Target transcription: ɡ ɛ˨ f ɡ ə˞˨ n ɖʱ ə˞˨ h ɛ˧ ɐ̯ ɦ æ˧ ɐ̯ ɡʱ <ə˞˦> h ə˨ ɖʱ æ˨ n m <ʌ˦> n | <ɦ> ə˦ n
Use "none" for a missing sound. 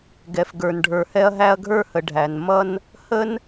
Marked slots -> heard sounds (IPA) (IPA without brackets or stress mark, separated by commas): ə˞˦˨, ʌ˦, h